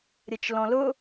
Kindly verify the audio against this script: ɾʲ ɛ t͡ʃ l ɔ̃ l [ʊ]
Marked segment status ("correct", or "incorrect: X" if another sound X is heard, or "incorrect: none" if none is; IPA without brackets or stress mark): correct